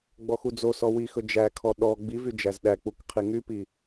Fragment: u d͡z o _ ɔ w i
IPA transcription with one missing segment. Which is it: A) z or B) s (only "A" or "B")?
B